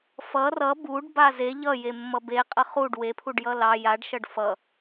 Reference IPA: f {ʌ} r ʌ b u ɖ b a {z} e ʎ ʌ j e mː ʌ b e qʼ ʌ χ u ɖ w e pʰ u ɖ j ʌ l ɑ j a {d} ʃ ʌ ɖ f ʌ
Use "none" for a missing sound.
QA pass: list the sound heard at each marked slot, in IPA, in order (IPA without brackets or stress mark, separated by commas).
ʌ, z, ɖ